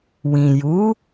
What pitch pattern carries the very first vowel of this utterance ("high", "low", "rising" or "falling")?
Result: low